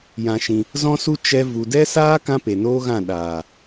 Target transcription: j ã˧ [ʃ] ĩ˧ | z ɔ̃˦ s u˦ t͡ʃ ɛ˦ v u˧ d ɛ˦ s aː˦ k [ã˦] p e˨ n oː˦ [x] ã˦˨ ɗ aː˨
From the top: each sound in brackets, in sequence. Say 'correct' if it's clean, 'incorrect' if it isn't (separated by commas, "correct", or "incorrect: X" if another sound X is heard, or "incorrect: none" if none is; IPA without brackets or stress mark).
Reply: correct, correct, incorrect: ɣ